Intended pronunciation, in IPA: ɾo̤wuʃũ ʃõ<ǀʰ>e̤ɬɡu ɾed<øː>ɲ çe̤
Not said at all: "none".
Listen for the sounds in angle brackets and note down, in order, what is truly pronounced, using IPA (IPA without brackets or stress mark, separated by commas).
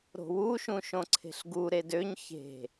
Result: ǀʰ, ø